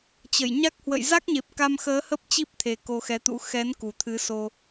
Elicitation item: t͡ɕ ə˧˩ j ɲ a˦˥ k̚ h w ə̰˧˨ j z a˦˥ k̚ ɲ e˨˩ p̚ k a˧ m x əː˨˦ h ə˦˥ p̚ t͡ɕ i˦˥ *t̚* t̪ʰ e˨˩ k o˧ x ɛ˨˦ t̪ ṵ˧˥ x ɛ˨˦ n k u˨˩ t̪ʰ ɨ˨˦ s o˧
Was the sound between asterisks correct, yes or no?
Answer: no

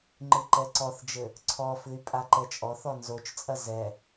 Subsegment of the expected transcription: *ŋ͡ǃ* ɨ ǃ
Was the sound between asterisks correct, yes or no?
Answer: yes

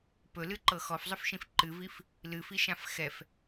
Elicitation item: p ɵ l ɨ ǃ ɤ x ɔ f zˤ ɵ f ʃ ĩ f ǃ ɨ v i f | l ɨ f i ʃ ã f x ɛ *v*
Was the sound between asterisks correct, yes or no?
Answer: no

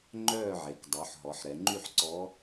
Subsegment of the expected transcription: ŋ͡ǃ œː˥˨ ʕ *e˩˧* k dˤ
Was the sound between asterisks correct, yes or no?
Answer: yes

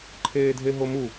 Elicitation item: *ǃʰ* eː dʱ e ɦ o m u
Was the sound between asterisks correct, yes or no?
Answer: yes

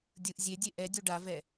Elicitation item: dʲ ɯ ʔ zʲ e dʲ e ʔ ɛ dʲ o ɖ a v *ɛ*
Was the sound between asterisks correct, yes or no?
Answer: yes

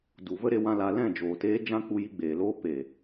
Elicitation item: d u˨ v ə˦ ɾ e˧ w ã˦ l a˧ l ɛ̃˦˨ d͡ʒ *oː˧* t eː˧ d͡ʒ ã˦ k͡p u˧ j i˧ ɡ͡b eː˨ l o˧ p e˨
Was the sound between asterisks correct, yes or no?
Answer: no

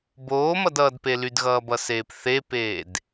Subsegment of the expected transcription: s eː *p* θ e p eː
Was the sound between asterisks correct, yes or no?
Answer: yes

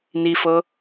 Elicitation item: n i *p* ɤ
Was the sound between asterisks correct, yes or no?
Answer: no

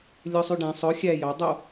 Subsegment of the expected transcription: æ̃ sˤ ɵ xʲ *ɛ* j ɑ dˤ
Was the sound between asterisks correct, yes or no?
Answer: no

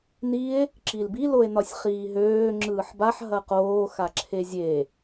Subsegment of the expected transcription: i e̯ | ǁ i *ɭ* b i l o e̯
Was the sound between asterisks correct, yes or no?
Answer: no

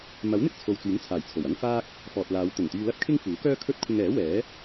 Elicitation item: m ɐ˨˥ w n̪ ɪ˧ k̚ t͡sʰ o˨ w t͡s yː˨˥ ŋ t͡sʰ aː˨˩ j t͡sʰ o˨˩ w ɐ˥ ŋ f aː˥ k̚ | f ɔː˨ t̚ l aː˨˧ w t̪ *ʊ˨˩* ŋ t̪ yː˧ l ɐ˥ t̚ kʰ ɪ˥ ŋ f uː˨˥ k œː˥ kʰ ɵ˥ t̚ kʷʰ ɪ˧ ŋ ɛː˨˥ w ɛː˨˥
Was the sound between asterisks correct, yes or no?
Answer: yes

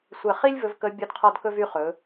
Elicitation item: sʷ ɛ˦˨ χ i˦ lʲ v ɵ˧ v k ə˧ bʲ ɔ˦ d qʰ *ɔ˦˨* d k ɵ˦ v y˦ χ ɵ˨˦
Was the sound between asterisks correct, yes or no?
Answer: no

